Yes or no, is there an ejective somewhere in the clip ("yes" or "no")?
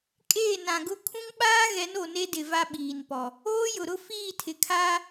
yes